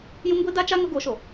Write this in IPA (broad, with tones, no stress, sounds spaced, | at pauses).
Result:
j ũ˦ ŋ ɡʷ i˦ d a˦ t͡ʃ a˦ ŋ ʊ˦ ɡ o˨˦ ʃ o˨